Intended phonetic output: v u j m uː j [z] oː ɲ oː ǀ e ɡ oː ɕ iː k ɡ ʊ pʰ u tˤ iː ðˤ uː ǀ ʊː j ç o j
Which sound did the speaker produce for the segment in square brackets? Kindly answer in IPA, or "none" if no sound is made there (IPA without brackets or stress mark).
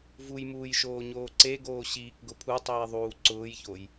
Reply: ʃ